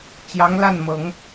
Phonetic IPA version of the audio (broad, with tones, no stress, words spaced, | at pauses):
t͡ɕjɑ˧˥ŋla˥˩nmɤ˨˩˦ŋ